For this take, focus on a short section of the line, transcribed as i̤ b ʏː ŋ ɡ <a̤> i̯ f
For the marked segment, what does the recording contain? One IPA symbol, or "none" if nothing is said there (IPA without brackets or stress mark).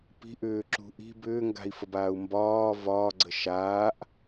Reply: a̤